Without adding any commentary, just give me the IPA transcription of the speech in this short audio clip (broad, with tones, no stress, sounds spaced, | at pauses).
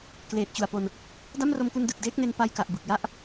k l eː˨˩ t̚ t͡ɕ u˨˩ a̯ p o˧ n | d a˥˩ m r o˧ m k u˧ n d ɯ˨˩ k̚ d eː˦˥ k̚ n e˧ n p a˧ j k a˨˩ ʔ b ɯ˨˩ k̚ j a˥˩ ʔ